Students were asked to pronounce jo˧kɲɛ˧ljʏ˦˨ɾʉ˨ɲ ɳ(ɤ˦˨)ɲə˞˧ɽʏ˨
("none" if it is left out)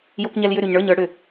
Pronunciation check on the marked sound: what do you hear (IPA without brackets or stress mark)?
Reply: ə˞˦˨